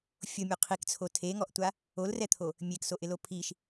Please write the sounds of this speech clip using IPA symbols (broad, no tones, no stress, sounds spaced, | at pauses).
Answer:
fʲ o mʲ o qʰ i k t͡sʰ o tʰ e ŋ ɔ ʔ tʷ a | o l r ɛ t̪ʰ o | mʲ e k s o ʔ ɪ l o pʰ i ʃ